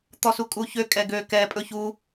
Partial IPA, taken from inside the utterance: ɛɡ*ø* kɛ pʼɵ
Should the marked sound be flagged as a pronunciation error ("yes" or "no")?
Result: no